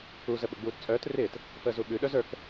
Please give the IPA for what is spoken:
u z ə ɓ ə ɡ͡b uː t t͡sʼ œː t r ɪː t | f əː z u ɓ ʉ ɗ œ z ə˞ k

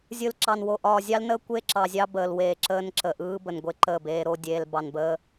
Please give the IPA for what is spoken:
zʲ ɯ˨ l ǁ ɑ˨ n w o˨ ʔ ɒː˨ zʲ ɑ˦ l n əː˦ kʷ e˦ ǁ ɑ˨ zʲ ɑ˦ b əː˨ l w eː˨ ǁ əː˦ n ǁ ə˨ ʔ ɯː˦ b ə˨ n ɡʷ e˦ ǃ əː˦˨ b eː˦ ɾ o˦ dʲ eː˦ l b ɑ˨ n b əː˦

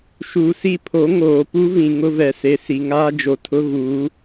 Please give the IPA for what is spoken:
ʃ uː˨ s i˦˨ pʰ o˨˦ ŋ oː˨ p u˦ v ĩ˨ ŋ ʊ˦ v ɛ˨ s e˨ s i˨ ŋ aː˦ d͡ʒ o˨ tʰ ʊ˦ ɣ uː˨˦

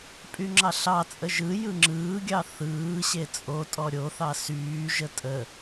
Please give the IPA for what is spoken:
pʼ y ŋ͡ǁ ɑ ɬ ɑ t͡sʼ ə ʒ ɯ j ɯ ŋ͡ǁ ɯː ɡʲ ɑ θ ɯː ɕ e t͡sʼ o tʼ ɔ ɾʲ o θ ɑ s yː ʒ ə tʼ ə

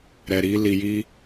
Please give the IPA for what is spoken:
ɾ ɛ˨ ɾ i˧ l i˧ j i˦

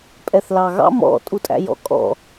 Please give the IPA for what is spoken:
pʼ ɛ θ l ɑ ɣ ɑ̰ m ɔ̰ tʼ u tʼ æ̰ j ɔ̰ kʼ ɔ̰

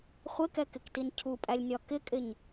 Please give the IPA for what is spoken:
χʷ ɪ k ɛ k ɪ k t i n cʰ u pʼ æ lʲ nʲ ɒ k ɪ kʼ ɪ ɲ

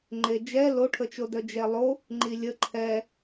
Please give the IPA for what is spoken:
ŋ͡ǃ e d͡ʒ ɛ l o ʈʰ ə t͡ʃ o d œ d͡ʒ ɛ lˠ o | ŋ͡ǃ i lʲ ə ǃʰ ɛ

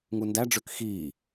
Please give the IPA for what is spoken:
ŋ u n d æ ɖ͡ʐ ø k x iː

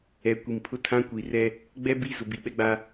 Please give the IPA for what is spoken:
ɛ˨ kʷ i˨ m pʰ ʊ˦ tʰ ã˦ kʷ i˨ r ɛ˦ | ɡ͡b ɛ˦ b i˦˨ z ʊ˨ b i˨ ɓ ɛ˦ ɡ͡b a˦

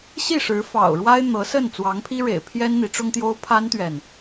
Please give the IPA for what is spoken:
ɕ i˥˩ ʂ ɻ̩˧˥ f ɑ̰˨˩ ʊ̯ ɻ w a˥ ɪ̯ n̪ ɤ˧˥ s ə˥˩ n t͡s w ɑ˧˥ ŋ pʰ i˥ ɻ ḛ˨˩ ɪ̯ pʰ j ɛ˥ n n̪ i˧˥ ʈ͡ʂ ʊ˥ ŋ t̪ j o˥ ʊ̯ pʰ a˥ n t̪ ɥ ɛ˨ n

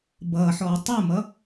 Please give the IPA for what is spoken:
b ʌː ħ ɔː tˤ u m ʌ

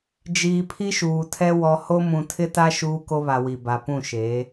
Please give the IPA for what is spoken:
d͡ʒ iː˨ pʰ i˦ ʃ uː˨ tʰ ɛ˦ w ɔ˨ h o˦ m ũ˨ tʰ ɪ˦ t a˦ ʃ uː˦ k o˦ β a˨ w i˨ b a˨ p ũ˦˨ ʃ eː˨˦

